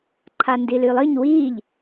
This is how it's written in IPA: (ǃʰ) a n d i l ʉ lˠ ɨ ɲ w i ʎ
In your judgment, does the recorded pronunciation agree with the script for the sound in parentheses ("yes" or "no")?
yes